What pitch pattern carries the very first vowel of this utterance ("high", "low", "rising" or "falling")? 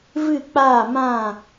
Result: falling